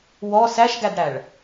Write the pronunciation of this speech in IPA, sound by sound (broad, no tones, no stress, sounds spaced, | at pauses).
w ɔ s æ ʃ ɡ æ d ɽ æ ɭ